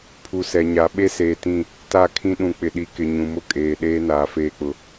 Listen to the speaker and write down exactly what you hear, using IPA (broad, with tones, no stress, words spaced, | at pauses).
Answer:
pʰu˨sɛ˨ɲa˨˦ ɓe˦seː˨tĩ˦˨ | ta˦˨kʰĩ˦ ɗũ˨k͡pɪ˨ɗi˨kɪ˨ ɲũ˨mʊ˦kʼeː˨ ɗeː˦naː˨ feː˦k͡pʊ˦